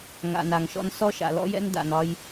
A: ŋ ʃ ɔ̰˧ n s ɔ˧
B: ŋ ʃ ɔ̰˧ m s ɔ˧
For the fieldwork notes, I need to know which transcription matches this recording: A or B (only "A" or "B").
A